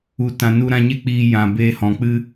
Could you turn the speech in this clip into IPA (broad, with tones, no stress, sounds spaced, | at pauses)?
u˨ t ã˨ n u˧ ɾ ã˧ ɲ e˦ k͡p iː˧ j ã˨ b eː˧ h ɔ̃˨ k͡p ɨ˦